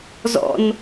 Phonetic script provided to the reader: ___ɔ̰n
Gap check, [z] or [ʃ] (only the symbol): z